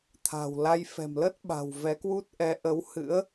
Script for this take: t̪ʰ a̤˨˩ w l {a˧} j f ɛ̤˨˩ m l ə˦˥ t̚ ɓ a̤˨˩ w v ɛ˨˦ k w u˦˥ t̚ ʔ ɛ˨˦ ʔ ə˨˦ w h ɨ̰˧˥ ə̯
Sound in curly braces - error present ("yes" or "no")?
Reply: no